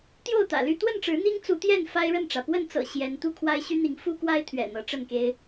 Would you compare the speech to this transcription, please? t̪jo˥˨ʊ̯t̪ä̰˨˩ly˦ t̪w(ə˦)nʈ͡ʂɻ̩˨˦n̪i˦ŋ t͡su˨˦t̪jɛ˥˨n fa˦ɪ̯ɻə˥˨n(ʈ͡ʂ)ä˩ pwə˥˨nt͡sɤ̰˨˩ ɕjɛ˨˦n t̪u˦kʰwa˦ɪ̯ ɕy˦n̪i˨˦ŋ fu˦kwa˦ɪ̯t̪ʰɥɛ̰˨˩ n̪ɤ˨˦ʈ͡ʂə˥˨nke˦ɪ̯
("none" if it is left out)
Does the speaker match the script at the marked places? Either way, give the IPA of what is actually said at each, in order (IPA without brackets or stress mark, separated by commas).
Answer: ə˥˨, ʈ͡ʂ